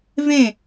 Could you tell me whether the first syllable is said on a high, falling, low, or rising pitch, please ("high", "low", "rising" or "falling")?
falling